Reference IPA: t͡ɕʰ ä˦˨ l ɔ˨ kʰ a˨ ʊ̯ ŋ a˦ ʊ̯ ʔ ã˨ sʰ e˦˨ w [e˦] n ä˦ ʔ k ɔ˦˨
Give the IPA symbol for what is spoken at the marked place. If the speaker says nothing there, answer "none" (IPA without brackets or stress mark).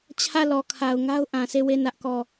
e˦˨